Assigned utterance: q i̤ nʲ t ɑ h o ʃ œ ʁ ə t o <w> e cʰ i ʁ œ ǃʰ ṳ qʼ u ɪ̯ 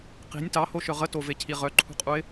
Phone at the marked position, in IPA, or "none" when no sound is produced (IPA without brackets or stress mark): v